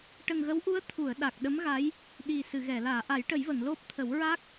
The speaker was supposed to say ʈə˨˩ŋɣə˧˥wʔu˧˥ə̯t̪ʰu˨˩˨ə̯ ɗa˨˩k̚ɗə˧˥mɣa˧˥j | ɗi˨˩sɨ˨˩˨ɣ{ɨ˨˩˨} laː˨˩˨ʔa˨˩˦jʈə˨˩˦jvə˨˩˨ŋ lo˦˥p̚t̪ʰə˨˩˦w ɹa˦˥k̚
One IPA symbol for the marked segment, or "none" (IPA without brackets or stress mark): ɛ˨˩˨